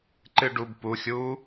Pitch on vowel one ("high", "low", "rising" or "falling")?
falling